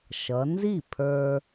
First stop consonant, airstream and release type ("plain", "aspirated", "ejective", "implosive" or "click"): aspirated